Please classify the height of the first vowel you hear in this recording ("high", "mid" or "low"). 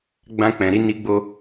low